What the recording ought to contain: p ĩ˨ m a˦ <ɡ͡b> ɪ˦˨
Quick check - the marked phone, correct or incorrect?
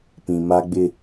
correct